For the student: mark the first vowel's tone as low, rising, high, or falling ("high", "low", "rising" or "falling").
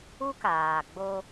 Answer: high